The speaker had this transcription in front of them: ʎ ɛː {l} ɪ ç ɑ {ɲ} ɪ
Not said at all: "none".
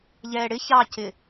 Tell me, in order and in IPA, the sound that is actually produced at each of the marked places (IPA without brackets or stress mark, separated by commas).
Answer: ɽ, c